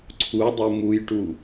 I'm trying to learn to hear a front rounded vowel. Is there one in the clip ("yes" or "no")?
no